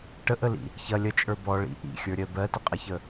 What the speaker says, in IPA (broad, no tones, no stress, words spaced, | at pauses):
ʈəʔəlḭ | çɐ lʲɐt͡ʃʼə˞ bɔ ɭḭ ʔḭxʲə˞ɾʲɜ bɜtəqʼɐçə